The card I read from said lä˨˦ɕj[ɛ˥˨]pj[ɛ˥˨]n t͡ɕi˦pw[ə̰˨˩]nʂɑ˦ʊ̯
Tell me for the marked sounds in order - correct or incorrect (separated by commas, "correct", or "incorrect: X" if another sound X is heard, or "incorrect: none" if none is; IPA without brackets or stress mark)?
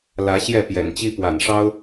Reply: correct, incorrect: ɛ̰˨˩, incorrect: a̰˨˩